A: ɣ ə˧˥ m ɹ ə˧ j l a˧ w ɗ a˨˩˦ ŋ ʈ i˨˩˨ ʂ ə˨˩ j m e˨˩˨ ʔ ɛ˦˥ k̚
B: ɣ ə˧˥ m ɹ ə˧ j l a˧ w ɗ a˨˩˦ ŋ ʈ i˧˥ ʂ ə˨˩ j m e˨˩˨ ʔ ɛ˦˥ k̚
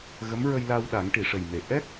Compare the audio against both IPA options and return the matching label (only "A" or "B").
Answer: A